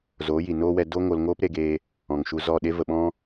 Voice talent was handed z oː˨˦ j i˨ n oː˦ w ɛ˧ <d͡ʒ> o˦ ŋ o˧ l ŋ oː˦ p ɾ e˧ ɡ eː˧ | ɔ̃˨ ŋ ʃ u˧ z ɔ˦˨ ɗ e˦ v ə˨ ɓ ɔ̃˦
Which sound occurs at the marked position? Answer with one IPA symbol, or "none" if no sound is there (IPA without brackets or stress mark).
d